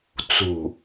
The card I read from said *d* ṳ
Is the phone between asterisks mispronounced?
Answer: yes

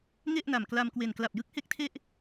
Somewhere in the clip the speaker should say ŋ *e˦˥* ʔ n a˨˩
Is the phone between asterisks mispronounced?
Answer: yes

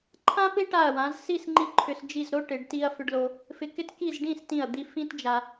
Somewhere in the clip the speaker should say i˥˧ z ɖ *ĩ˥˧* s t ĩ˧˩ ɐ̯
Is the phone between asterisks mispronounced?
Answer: no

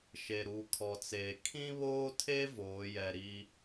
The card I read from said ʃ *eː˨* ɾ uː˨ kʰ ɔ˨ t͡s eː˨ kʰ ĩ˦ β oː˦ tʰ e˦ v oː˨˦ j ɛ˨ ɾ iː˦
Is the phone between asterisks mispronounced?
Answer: yes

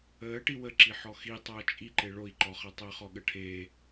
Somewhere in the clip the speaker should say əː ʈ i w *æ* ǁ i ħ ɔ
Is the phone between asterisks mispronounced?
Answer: yes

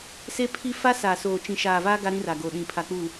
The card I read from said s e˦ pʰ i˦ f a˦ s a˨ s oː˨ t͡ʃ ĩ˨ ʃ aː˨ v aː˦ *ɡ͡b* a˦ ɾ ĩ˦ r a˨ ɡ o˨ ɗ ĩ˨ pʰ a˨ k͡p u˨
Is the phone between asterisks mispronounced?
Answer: yes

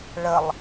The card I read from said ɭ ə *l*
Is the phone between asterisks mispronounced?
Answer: yes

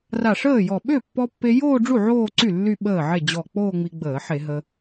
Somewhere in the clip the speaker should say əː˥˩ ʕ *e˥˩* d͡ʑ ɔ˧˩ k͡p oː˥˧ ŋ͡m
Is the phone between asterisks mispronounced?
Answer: no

